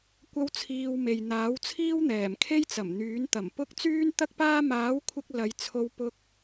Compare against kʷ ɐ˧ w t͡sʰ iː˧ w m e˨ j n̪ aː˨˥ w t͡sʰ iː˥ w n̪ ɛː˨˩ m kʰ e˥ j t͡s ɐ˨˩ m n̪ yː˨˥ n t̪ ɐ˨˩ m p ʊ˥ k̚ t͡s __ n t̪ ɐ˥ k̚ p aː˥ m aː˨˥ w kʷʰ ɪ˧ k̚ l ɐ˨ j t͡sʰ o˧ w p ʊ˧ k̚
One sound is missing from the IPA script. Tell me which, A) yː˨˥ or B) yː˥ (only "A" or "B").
B